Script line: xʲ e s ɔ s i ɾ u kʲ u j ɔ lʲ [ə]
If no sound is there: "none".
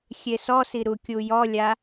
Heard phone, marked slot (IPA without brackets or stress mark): a